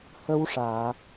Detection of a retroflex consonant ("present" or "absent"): present